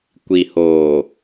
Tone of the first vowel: low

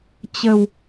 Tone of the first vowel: low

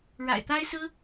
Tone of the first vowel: low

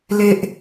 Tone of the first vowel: low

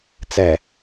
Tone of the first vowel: low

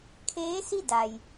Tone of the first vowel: rising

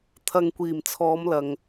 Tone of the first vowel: low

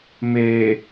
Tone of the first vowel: low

